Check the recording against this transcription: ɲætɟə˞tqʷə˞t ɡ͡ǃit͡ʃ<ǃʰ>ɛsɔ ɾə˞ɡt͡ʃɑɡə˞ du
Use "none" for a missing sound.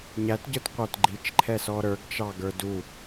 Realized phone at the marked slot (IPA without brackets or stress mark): ǃʰ